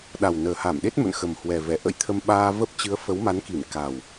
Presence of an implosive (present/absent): present